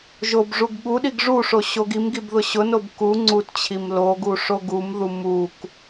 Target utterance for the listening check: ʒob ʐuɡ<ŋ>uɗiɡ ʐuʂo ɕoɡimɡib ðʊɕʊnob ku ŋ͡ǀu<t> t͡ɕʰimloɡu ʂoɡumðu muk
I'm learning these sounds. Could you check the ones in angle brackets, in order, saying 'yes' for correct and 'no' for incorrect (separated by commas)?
no, yes